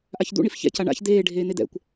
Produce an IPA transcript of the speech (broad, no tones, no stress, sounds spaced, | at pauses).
ʔ a ç d̪ ṵ ɳ i f ç ɛ̰ c a ɳ a̰ ç d̪ eː ɖʱ eː n̪ e d̪ ɛ̰ kʷ